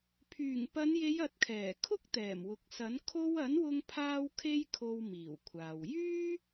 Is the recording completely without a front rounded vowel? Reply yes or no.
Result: no